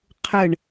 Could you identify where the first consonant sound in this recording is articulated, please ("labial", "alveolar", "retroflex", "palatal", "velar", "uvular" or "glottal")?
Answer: uvular